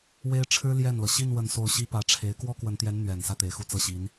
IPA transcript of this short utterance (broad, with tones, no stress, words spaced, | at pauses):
we˥ɪ̯ʈ͡ʂʰɻ̩˥ ljɛ˥˩nlɤ˩ ɕi˥˧n wə˥˧nso˥˩ʊ̯ ɕi˥pä˧˥ʈ͡ʂʰe˧˥ɪ̯ kwɔ˥kwə˧˥nt̪jɛ˧˥n n̪ɥɛ˨˩n sä˥˩t̪e˨˩ɪ̯xu˥˧ t͡sɤ˥˩ɕi˧˥n